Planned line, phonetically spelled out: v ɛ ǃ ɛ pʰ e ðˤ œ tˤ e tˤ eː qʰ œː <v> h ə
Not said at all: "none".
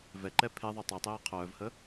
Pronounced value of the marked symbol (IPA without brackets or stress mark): v